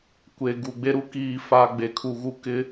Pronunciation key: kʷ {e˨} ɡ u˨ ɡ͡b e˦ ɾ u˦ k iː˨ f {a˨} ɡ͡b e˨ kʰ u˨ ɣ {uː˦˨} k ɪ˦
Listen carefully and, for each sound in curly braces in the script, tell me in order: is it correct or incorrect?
correct, correct, incorrect: u˦˨

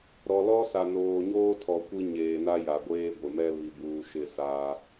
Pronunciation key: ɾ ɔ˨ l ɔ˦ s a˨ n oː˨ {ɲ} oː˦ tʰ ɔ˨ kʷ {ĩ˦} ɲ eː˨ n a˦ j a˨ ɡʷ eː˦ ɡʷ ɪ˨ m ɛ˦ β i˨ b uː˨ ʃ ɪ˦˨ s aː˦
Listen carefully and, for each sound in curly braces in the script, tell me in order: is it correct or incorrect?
correct, incorrect: i˦

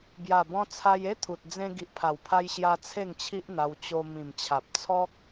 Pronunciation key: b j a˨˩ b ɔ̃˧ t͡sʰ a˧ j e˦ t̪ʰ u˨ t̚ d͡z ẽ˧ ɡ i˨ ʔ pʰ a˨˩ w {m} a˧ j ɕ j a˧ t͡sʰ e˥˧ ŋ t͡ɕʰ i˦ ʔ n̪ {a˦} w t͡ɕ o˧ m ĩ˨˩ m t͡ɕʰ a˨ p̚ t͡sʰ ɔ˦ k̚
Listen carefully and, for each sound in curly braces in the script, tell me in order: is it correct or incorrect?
incorrect: pʰ, incorrect: a˧

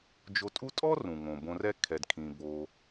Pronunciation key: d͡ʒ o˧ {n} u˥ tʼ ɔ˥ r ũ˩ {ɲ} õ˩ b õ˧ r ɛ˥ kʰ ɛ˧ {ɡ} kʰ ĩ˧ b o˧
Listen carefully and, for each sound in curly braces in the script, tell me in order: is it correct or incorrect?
incorrect: tʼ, incorrect: ŋ, incorrect: d

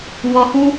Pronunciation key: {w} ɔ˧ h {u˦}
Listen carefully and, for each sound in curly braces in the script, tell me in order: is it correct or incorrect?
correct, correct

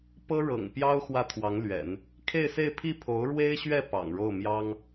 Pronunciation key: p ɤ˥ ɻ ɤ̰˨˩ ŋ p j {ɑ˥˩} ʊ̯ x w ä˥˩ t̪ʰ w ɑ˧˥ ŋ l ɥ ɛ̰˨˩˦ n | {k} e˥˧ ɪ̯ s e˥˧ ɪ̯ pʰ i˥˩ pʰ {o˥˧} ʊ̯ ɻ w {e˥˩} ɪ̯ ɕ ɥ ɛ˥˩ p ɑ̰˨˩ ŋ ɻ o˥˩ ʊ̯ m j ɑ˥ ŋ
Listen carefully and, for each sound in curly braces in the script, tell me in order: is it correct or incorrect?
incorrect: ɑ˥, incorrect: kʰ, incorrect: o˧˥, incorrect: e˥

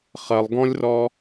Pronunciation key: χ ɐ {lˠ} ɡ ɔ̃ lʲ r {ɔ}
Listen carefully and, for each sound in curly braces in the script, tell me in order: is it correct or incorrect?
correct, correct

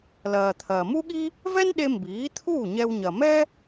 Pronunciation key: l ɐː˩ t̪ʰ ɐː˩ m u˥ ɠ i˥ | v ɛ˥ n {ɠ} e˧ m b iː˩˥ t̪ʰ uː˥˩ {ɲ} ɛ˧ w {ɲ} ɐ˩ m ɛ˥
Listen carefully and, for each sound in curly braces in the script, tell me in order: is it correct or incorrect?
incorrect: ɗ, correct, correct

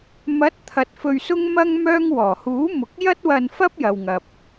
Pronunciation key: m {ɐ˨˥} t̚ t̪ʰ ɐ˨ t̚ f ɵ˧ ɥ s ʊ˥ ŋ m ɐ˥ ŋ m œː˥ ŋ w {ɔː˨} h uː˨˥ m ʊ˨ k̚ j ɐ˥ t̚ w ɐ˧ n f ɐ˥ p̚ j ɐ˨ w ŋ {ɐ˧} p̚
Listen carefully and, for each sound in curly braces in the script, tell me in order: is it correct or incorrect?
correct, incorrect: ɔː˨˩, incorrect: ɐ˨

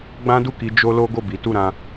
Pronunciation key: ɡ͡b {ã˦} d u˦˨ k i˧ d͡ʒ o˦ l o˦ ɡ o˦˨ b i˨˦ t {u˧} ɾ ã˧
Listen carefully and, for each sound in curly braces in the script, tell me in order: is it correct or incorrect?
correct, incorrect: u˦˨

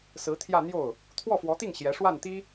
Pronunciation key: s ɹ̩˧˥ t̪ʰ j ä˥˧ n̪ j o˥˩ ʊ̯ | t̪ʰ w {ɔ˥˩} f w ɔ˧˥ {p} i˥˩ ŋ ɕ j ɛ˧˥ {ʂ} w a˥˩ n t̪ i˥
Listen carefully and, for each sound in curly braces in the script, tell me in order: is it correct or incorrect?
correct, incorrect: t̪, correct

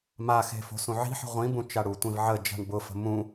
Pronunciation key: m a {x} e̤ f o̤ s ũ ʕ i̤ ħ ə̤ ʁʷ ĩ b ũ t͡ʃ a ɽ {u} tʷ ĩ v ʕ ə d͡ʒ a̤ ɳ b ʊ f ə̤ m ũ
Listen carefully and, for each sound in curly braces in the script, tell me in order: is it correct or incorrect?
correct, correct

